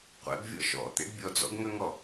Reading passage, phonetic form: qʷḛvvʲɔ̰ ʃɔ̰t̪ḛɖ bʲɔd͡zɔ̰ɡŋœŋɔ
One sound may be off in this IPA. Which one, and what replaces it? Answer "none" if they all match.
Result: v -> b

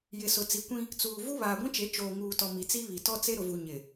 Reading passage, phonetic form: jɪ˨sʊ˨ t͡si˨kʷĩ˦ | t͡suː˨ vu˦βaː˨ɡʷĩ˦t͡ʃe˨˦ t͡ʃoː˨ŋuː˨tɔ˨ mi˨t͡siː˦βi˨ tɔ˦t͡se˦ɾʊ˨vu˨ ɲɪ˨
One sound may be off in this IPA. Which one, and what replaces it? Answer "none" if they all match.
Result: iː˦ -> i˦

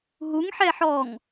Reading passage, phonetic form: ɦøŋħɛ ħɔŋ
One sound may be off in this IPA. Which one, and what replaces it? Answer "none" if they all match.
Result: ø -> u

